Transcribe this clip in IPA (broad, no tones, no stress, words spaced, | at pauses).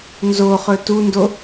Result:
nzoχɵ tundo